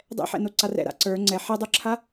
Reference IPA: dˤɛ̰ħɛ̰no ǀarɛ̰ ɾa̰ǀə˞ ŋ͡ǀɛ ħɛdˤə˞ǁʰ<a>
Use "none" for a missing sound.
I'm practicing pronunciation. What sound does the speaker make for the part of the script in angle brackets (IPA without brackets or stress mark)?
a